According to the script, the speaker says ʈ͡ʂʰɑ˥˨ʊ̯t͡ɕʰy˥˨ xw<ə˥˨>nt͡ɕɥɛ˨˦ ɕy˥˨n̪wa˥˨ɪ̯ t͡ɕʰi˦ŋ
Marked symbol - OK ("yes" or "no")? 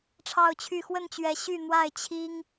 yes